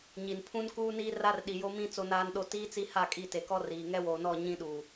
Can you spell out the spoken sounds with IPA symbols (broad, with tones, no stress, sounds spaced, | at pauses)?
ɲ i˨ n pʰ ũ˦ n k uː˦ n iː˦ r a˦ r ɗ i˨ j o˦ m ĩ˦ t͡s o˦ n aː˦ n ɗ o˦ t iː˦ t͡s i˦ h a˦˨ kʼ i˦˨ t e˨ k ɔ˦ r iː˨ ŋ ɛ˦ w oː˨ n ɔ˦˨ ɲ ĩ˦ ɗ uː˨